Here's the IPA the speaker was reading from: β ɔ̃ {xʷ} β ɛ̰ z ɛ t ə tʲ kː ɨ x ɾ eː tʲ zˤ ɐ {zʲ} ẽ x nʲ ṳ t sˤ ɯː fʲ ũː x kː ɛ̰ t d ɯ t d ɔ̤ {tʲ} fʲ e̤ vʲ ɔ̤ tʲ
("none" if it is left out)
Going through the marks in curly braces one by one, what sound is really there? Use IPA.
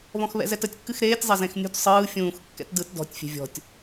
x, z, tʲ

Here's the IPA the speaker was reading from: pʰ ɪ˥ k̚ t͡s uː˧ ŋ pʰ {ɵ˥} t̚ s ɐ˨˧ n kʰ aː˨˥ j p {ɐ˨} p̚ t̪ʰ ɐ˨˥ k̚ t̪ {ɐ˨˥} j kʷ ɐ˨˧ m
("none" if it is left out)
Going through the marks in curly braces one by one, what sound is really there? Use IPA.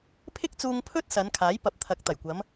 ɵ˥, ɐ˨˥, ɐ˨˩

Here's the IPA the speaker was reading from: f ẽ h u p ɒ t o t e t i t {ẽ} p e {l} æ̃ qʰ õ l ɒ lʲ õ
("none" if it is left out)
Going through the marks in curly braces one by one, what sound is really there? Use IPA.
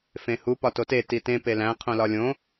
ẽ, l

